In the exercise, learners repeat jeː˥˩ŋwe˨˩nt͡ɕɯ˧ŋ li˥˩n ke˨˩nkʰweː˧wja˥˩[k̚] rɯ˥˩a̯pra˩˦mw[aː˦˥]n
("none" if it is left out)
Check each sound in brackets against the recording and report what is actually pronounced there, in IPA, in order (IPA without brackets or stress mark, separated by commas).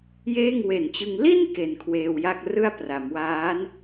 k̚, aː˦˥